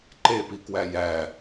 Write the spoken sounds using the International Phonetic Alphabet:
ǃ e p i k w æ j æ

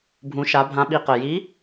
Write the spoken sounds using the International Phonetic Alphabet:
bʱ ũ˧˥ ʃ a˧˥ bʱ ã˧˥ ɓ i˧ q ə˧˩ j i˧˥

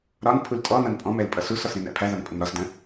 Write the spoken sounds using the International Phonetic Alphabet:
ɾ ɒ n pʰ u l tʼ ɔ n ʌ n pʼ ɔ̃ m ɛ l pʼ ʌ s u s ɔ s ɾ ĩ n ɾ æ̰ pʰ æ ð ɒ n pʼ ɪ m ɾ ɒ s d ə̃

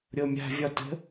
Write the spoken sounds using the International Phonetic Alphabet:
ɾʲ ɤ mʲ a̤ vʲ ɒ t ə̤

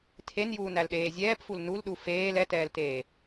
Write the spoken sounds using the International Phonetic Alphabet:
tʰ e n j uː n æ l ɗ eː zʲ ɛː p f u l n u l ɗ u f eː l ɛ t ɛː l t eː

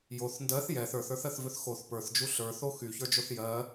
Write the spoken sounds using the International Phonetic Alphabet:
j o θ n d ɜ θ j ɛ θ ə˞ θ ə˞ θ ɜ θ v ʏ θ x o θ p ə˞ θ d͡ʒ u ɬ ə˞ θ o x y ç ə˞ d͡ʒ o θ j ɜ

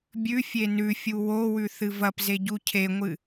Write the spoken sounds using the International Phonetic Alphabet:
bʲ ʉ fʲ e n ʉ fʲ u w o w ʉ θ ɨ v ɐ p z e ɟ u cʰ e ŋʷ ɨ

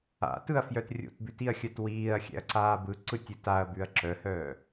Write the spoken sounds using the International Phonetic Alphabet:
a̰ t ɯ ɐ̯ f j œ t rʲ o̰ t b ʉ t i ɐ̯ xʲ œ t w iː ɐ̯ xʲ ɛ̰ ɐ̯ ǀ aː b ɯ ǀ ɯ tʲ ɯ t a ɐ̯ b ʉ ɐ̯ ǁ œ h œː

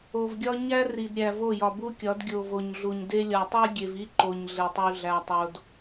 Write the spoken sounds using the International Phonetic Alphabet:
o˨ v ɡʲ ɒ˦ ɲ æ˦ r i˨ d ɾʲ æ˨ v o˦˨ j ɒ˨ b u˦ kʲ ɒ˨˦ d ɡʲ o˨ v o˨ ɲ ɮ u˨ ɲ d e˦ lʲ ɒ˨ tˤ u˦ ɡʲ e˨ v i˦ ǃ o˨ ɲ ɮ e˨ tˤ u˨ ɮ æ˨ tˤ o˨ d

